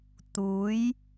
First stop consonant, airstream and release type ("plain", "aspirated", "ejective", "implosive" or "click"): plain